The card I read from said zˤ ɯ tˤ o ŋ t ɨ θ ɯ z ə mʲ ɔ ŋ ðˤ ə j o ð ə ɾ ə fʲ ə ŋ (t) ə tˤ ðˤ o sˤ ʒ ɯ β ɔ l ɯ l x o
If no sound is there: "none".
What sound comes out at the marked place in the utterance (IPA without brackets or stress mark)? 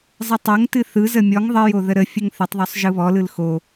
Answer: θ